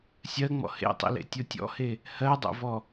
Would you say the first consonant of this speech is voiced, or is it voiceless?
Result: voiceless